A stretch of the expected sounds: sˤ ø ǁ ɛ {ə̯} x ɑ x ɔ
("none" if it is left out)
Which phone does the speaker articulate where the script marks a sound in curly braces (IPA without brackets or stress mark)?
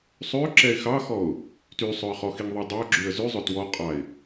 ɪ̯